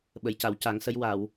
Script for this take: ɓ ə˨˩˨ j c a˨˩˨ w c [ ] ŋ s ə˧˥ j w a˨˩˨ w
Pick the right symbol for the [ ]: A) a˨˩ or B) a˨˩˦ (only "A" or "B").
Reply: B